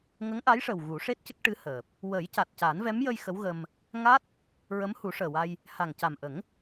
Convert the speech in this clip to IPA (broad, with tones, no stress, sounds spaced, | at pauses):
ŋ ə˧˥ ŋ ʔ a˧˥ j ʂ ə˨˩ w ɣ u˨˩˦ ʂ e˦˥ t̚ c ə˦˥ k̚ ʈ ɨ˧˥ h əː˨˩ p̚ | w ə˨˩˦ j c a˨˩ t̚ c a˨˩˦ n v ɛ˧˥ m j ə˧ j x ə˧˥ w ɣ ə˧ m | ŋ a˦˥ t̚ | ɹ ə˧˥ m h u˨˩˦ ʂ əː˨˩ w a˧ j | h a˨˩ ŋ c a˨˩ m ʔ ə˨˩˦ ŋ